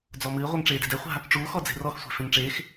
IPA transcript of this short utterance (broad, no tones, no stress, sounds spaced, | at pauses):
d͡z ɔ m ɨː ʁʷ ɛ ŋ ʈ͡ʂ eː d e̤ d ɛ χʷ a̤ | ʈ͡ʂ uː x ɔ d͡z e̤ r ɔ x sʷ e̤ f ẽ ŋ ʈ͡ʂ eː x